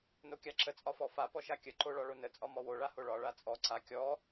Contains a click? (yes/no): yes